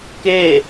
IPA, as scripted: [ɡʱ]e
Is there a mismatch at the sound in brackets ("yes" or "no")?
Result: yes